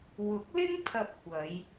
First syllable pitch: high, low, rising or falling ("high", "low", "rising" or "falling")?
rising